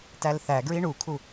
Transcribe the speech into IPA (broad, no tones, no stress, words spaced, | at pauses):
tælθæ ɡɹiɳukʰu